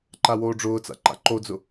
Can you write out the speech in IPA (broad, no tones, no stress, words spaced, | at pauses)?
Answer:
ǃawoːɖ͡ʐʊːt͡sa̰ ǃa̰ǃod͡zʊ